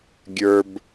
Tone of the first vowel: low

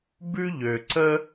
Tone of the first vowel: high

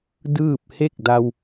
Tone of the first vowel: falling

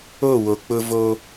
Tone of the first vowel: falling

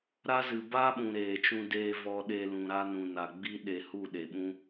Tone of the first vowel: high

